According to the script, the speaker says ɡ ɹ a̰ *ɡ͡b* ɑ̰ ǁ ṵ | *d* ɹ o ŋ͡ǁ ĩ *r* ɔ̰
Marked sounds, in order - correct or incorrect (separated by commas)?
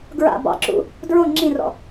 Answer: incorrect, correct, correct